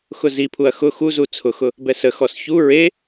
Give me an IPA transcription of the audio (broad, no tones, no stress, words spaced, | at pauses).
xʊzipʰuɐ̯ xʊ xuzu t͡sʰʊxʊ | bɛsəxɔs çu ɹe